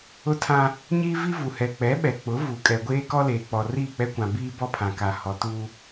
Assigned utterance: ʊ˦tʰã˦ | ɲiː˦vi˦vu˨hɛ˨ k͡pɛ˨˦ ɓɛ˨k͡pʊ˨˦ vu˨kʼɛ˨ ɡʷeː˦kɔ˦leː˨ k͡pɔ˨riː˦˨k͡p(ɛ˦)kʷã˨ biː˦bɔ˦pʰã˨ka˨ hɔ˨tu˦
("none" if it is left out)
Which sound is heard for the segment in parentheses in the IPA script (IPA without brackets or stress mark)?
ɛ˦